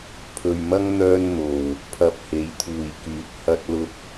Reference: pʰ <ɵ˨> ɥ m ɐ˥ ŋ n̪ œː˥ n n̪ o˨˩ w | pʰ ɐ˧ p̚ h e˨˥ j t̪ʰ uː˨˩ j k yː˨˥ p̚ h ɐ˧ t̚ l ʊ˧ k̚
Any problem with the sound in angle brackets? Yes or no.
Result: no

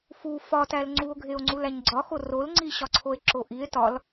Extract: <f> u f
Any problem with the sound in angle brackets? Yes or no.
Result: no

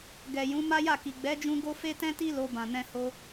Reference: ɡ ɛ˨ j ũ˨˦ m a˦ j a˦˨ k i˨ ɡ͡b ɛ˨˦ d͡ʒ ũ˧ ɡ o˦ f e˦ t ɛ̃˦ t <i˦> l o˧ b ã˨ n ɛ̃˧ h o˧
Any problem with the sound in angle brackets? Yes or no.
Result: no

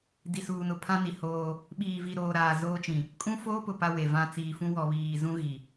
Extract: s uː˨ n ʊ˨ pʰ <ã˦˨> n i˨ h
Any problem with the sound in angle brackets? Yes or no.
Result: yes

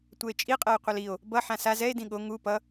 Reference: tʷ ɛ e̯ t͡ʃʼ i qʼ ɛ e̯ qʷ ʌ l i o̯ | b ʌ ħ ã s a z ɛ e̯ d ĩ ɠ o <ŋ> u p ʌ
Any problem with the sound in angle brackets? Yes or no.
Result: no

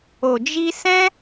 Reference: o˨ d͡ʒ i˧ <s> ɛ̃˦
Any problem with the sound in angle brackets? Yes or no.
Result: no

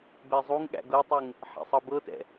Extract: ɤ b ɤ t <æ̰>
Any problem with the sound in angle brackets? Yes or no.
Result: yes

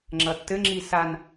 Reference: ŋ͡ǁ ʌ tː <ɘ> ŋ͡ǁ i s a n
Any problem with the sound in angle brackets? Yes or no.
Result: no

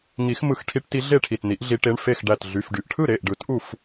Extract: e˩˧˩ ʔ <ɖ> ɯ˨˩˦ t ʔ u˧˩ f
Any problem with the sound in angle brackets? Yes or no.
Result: no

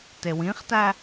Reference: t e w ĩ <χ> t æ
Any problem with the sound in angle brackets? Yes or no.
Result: no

